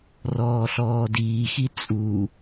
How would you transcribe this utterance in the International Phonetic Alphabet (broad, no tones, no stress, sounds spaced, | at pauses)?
r ɔː ɬ ɔː d iː x i t͡sʼ u